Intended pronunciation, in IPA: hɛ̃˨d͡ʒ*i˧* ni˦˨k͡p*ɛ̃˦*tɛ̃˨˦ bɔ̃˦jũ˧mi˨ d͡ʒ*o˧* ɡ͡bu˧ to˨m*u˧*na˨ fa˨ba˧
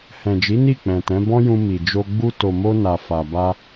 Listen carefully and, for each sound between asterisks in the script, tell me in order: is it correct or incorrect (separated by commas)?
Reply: incorrect, incorrect, correct, incorrect